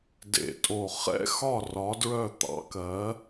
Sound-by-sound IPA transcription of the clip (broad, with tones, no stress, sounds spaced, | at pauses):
d ḛ˨˩ tʼ o˨˩ χ ɛ̰˦˥ x ɒ˥˨ r ɒ˨˥ d ɹ œ˥˨ t̪ ɑ̰˨˥ k ɜ˨˥